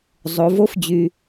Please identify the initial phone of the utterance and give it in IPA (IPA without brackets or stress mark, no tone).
zˤ